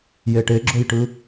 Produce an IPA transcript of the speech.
jeʈeɡ͡ǁojʈɯ

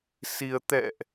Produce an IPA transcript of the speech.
si˧ə̯ t̪ɛ̰˧˨ʔ

